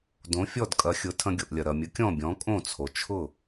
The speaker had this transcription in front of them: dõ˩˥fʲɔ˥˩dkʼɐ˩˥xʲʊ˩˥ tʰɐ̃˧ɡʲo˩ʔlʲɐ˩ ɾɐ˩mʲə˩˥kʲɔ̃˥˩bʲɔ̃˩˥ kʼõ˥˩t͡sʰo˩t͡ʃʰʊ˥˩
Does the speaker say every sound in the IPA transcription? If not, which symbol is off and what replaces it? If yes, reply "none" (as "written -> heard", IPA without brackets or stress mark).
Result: none